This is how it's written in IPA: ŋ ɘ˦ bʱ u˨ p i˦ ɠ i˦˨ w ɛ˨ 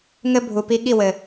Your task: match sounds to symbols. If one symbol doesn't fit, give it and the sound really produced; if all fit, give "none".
ɛ˨ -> ɘ˨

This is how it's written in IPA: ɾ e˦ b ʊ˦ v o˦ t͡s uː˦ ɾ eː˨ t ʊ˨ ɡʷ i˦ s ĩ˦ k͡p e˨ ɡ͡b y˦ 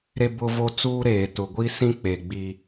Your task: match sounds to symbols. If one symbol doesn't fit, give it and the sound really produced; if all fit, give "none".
y˦ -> i˦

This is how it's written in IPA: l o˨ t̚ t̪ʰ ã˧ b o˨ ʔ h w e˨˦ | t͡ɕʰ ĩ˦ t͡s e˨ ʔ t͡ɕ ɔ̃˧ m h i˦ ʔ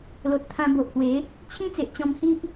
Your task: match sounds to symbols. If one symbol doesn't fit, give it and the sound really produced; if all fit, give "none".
none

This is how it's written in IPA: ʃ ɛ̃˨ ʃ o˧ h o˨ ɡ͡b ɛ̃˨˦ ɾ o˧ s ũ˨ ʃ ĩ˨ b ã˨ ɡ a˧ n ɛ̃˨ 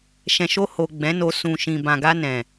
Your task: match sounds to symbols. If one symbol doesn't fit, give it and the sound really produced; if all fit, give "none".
ɾ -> n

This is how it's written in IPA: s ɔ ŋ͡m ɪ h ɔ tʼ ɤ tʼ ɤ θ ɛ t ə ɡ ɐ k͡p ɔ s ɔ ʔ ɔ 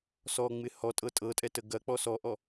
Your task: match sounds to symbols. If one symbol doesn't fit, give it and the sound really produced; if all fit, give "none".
θ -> tʼ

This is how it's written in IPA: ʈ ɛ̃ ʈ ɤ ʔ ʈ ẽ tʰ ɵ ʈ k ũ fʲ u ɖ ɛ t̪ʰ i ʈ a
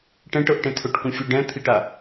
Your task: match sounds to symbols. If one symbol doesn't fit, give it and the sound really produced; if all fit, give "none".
ɛ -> ɛ̃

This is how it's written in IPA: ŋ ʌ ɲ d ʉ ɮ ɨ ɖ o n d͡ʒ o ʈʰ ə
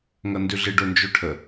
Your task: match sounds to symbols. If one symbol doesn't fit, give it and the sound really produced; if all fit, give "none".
ɲ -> n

